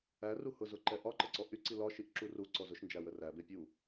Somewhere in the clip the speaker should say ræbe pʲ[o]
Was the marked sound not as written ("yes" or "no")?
yes